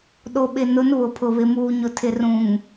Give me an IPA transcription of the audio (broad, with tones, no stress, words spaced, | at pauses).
ɗo˨ɓɪ˨nʊ˨˦n βʊ˨pʰʊ˨ βɪ˨muː˨ɲʊ˨ tʰɪ˨rũ˨ŋ